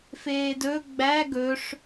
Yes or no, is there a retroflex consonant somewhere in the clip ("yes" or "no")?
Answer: yes